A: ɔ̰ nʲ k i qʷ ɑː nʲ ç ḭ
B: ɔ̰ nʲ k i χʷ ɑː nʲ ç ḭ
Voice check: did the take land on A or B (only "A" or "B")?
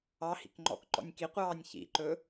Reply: A